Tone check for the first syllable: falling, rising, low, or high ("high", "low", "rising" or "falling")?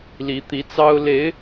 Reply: rising